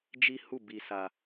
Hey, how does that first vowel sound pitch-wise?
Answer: high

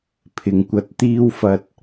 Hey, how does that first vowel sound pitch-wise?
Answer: low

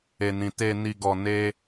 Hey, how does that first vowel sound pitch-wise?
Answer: low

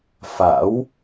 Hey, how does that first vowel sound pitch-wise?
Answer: rising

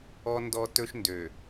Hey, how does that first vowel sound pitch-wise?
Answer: high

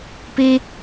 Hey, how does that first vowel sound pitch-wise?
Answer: high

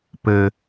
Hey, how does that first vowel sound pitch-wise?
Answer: low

